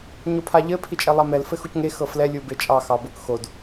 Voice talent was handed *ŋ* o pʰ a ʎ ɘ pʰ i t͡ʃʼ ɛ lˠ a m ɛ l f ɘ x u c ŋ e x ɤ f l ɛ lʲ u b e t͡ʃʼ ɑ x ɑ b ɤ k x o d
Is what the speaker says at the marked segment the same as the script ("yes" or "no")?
no